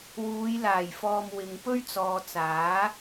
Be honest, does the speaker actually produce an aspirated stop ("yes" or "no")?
no